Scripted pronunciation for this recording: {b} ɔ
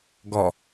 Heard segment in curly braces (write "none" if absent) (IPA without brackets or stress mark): ɡ